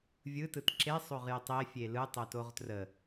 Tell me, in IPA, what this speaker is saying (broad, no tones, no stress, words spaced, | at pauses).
vʲɯtɯt ǁesˤoʁjetˤ efʲe lɯtˤotoʁ trə